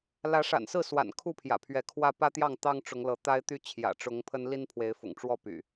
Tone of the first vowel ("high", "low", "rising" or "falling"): rising